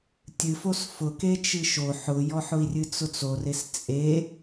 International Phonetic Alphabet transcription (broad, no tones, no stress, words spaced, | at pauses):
tʲɨfos fʊket͡ʃɨ ʃo ħʊjɔħʊi̯ rʲɨt͡sʊt͡sores t͡sʼe